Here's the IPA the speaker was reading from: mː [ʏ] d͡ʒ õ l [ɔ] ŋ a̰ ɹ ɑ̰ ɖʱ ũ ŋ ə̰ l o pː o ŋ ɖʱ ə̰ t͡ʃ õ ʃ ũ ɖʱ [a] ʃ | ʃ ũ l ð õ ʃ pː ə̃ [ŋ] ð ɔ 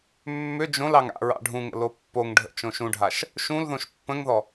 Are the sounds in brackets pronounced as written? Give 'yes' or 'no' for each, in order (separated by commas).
yes, no, yes, yes